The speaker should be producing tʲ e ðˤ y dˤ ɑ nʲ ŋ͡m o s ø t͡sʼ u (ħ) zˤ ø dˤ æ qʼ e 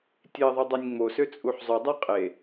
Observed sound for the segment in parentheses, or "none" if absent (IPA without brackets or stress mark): ħ